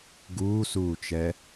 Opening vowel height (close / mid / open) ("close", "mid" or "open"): close